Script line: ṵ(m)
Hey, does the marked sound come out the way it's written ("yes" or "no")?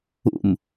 yes